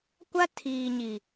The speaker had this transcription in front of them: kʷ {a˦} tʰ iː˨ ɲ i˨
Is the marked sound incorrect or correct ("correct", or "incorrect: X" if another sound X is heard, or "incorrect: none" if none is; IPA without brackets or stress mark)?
correct